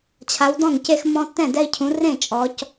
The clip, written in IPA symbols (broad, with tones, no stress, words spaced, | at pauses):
t͡ɕʰa˨˦wdɔ̃˥˩ŋce˦x mɔ̃˦ tːɛ̃˥˩dɛ˦i̯cʰũ˨˦ rẽ˥˩ t͡ʃʼɔ˨˦c